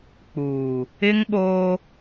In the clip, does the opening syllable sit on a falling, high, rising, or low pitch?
low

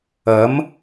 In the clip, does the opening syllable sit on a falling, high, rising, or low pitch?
rising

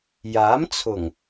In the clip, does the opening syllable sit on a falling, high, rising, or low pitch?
rising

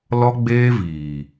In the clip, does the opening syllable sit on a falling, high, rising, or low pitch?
high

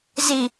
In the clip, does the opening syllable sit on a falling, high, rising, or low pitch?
low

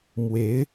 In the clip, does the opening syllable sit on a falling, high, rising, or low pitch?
rising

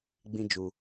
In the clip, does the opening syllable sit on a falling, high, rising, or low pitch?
high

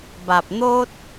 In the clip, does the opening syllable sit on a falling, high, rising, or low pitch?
low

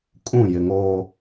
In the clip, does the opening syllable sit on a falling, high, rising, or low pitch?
falling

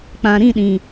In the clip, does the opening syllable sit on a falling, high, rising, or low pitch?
low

